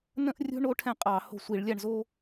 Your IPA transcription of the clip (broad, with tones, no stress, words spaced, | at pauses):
nə̃˥ʔrʲo̤˥ ɳo˥ʈʰɛ̃˥˩qʼɑ˧˩˧ ho̤˥˩sʷi˧˩˧ɭlʲa˥˧ɳ zo˥